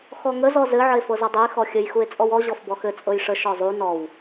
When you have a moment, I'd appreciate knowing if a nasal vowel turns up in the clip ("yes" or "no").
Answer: no